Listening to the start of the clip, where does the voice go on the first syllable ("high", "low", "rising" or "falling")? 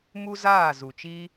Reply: high